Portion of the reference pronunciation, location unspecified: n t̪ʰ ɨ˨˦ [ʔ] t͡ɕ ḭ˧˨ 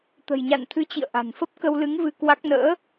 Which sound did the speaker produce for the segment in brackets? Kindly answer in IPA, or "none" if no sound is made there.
none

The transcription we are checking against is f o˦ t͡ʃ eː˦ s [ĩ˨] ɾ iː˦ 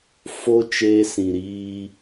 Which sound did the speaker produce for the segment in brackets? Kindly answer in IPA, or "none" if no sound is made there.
ĩ˨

